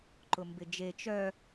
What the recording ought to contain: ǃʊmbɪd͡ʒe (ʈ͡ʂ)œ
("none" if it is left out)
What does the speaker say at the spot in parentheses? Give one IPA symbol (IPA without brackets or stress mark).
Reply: t͡ʃ